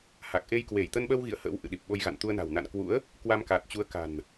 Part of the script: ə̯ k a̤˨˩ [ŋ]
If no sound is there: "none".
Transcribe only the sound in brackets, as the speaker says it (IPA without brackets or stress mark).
n